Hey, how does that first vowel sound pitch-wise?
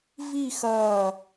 falling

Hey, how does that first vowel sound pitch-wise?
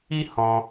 high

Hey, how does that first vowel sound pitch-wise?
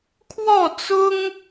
falling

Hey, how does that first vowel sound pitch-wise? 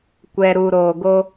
low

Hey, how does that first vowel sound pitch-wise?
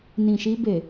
low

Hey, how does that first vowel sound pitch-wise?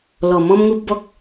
low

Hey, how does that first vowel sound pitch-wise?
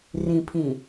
low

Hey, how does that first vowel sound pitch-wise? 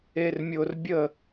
low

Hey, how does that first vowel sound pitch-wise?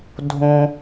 low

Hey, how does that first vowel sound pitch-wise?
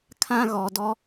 high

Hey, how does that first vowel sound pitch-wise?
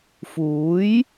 rising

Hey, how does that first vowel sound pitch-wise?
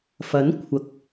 rising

